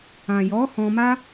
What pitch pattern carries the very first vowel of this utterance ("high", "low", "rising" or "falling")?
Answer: low